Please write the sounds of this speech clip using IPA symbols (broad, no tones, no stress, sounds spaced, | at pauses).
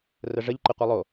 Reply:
r ə ʐ ə ʎ ǃ ə qʷ i lˠ o